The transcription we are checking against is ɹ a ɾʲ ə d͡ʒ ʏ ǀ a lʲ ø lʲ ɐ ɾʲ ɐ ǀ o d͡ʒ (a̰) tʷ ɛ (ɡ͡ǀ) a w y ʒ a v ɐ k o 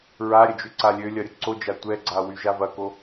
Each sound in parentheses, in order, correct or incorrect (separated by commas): incorrect, correct